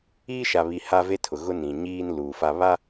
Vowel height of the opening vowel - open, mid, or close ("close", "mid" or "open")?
close